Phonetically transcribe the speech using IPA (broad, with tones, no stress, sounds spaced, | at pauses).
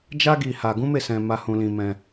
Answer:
d͡ʒ a˦ ɡ i˧ h a˧ ɡ ũ˦ m e˦˨ s ɛ̃˧ m a˧ h ũ˧ l ĩ˧ m ɛ̃˧